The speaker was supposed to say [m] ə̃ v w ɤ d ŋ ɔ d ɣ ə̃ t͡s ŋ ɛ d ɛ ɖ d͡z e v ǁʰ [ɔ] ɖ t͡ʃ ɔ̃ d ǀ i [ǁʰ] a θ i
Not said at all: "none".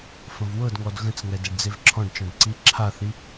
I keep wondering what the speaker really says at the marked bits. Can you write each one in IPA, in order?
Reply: f, ɔ̃, ǁʰ

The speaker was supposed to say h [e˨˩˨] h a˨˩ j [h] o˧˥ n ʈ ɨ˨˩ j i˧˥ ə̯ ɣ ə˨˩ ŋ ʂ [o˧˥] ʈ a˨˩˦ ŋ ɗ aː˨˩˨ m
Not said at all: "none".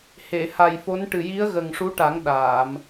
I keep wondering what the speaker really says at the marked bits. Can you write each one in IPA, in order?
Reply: e˨˩˨, f, u˧˥

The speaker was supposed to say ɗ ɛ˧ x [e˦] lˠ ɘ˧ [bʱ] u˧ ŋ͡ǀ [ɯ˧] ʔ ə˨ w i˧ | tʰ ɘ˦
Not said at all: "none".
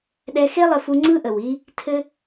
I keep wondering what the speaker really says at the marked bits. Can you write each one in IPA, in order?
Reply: e˦, f, ɯ˦

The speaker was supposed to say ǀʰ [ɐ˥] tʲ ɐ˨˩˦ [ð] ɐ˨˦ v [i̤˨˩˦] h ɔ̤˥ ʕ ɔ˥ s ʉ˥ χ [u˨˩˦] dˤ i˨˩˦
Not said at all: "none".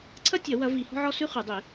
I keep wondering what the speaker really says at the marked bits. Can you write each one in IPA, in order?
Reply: ɐ˥, w, i˨˩˦, ʉ˨˩˦

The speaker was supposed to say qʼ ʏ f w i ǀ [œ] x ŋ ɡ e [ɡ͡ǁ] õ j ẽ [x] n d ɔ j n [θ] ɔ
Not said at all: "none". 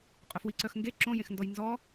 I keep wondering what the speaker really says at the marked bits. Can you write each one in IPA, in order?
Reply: œ, ǁ, x, z

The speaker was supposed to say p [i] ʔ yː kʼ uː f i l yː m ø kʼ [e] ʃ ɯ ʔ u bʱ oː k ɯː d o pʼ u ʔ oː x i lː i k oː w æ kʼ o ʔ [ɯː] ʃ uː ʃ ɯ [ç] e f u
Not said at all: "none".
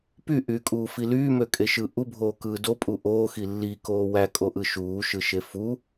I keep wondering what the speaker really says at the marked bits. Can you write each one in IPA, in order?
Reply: y, e, ɯ, ʃ

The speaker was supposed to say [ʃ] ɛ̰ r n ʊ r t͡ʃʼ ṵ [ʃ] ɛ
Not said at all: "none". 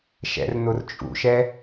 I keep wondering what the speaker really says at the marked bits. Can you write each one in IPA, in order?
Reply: ʃ, ʃ

